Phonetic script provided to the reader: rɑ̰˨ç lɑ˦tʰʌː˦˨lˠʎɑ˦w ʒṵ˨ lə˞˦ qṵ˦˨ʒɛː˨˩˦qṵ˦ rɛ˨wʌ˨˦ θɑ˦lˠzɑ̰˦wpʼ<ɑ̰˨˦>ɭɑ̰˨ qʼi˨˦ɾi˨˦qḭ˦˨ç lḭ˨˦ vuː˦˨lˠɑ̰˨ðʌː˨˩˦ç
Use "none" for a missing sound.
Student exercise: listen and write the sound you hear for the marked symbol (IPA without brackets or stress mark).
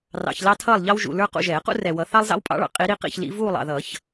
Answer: ɑ̰˨˦